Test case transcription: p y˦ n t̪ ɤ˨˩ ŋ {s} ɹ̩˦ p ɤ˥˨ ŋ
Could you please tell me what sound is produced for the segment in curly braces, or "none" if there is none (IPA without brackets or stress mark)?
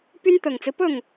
t͡s